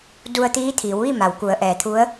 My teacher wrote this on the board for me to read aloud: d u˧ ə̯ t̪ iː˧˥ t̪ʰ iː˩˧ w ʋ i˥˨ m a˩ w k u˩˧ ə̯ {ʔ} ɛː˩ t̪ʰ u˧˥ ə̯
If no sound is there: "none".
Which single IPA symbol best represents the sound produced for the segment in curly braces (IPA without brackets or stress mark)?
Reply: ʔ